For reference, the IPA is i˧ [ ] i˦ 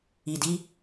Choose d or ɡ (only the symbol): d